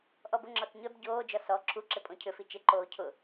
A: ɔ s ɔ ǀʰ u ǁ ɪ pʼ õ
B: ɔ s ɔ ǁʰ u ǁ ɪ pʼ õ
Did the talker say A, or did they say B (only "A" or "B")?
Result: B